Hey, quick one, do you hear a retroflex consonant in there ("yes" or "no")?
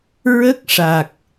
yes